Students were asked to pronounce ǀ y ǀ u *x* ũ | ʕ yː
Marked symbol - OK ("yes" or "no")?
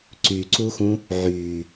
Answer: yes